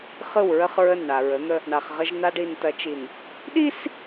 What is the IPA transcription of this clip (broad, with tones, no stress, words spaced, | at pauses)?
χɯ˦˨wɹə˦χɹə˦˨nɳa˨ ɹə˨˦n̪ə˦ | ɳa˨χʁə˦ʒna˦ɖ i˨ntɐ˨˦t͡ʃi˨n | ɗi˦s